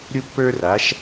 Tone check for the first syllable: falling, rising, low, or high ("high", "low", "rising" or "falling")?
high